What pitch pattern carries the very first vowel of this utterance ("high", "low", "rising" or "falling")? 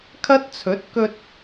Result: high